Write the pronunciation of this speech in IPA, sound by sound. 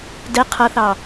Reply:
d ɛ qʰ ʌ θ ɑ

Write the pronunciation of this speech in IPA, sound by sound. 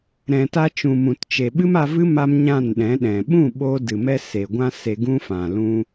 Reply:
ɾ ɛ̃˨ t a˧ t͡ʃ ũ˨ m ũ˨ t t͡ʃ e˨ ɓ ɨ˦ m a˧ v ɨ˦ m a˧ m ɲ ã˦˨ n ɗ ɛ̃˨˦ ɗ ɛ̃˨ ɓ ũ˦˨ ɓ o˦ d ɨ˨ m ɛ˦ s e˨ ɡʷ ã˦ s e˧ ɡ ũ˦ f ã˨ l ũ˦

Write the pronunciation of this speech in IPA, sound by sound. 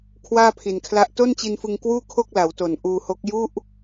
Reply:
kʰ w aː˥˩ pʰ i˨˩ n kʰ l a˦˥ ʔ t o˥˩ n t͡ɕ i˧ n f ɯ˧ ŋ k w uː˥˩ kʰ o˥˩ k̚ l a˩˦ w t o˨˩ n ʔ uː˧ h o˦˥ k̚ j u˥˩ ʔ

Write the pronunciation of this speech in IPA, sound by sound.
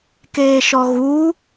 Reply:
k eː ʃ ɔ ɣ u

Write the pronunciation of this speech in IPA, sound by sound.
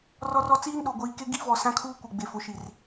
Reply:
r ɔ˦ r ɔ˦ t͡s iː˦ n ɗ o˨ ɡʷ iː˨ k e˦ ɡ i˦ v ɔ˨ s ã˦ kʰ uː˦ kʷ e˨ ɡ͡b e˨ f ʊ˨˦ ʃ i˨ r

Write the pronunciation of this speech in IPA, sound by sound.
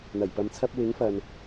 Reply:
n̪ ɐ˨˩ j p ɐ˨ m t͡sʰ ɐ˧ p̚ w ɪ˨˥ ŋ f ɐ˨ n

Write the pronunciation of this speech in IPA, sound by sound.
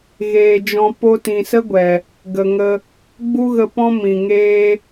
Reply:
ɣ eː˨ d͡ʒ ɔ̃˧ p o˧ t ĩ˨ s ə˦ ɡʷ ɛ˨ | ɡ ə˨ ŋ ə˧ | ɡ͡b u˦ ɣ ə˧ p ɔ̃˦ m ĩ˨ ŋ eː˦

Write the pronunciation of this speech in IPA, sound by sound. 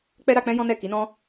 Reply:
k͡p ɛ˦ ɾ a˧ k͡p ɛ̃˦ j ɔ̃˦ n ɛ˦˨ k i˨˦ n ɔ̃˦

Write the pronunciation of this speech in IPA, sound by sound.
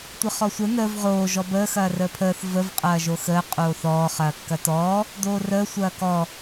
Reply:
tʷ ə χ ɔ sʷ ə n əː v ʁ oː ʒ ɔ b əː x ɐː r əː pʰ əː θ v ə v qʼ ɐː ʒ o x əː qʼ oː θ ɔː χ ɐː kː ɐ t ɔː | d oː r əː sʷ ɐː k ɔ

